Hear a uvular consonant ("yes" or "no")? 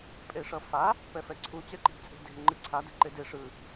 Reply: no